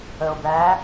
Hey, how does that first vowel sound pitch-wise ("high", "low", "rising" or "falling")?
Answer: low